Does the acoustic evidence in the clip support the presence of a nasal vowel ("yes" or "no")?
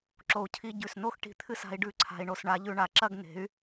no